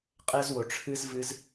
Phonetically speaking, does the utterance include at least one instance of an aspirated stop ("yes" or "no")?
yes